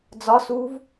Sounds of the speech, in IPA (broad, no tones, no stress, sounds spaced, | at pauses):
d͡z ɒ s u v